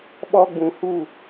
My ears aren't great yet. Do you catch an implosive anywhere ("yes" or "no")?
yes